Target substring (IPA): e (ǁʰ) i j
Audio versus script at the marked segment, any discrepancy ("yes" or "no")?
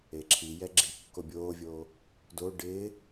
no